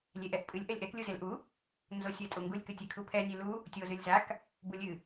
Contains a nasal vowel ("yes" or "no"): no